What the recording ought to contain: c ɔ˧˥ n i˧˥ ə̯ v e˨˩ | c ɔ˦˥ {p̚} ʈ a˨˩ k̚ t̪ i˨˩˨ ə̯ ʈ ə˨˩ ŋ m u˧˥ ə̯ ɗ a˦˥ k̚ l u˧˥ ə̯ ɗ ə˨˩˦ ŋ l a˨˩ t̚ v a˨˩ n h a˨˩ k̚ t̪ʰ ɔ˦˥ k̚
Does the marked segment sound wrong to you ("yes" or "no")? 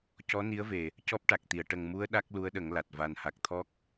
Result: no